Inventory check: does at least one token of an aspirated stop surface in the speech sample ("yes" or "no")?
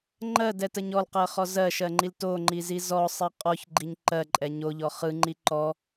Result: no